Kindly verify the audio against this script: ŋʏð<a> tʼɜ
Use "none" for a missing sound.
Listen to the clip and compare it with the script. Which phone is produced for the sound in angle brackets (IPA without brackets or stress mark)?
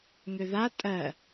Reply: a